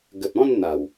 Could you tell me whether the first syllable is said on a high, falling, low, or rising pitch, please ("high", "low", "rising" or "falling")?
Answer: low